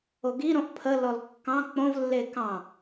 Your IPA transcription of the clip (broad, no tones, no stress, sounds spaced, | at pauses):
o ɡ i ɾ õ ʔ pʰ ə l ɔ l kː ɑ̃ k͡p õ v lː e k ɑ̃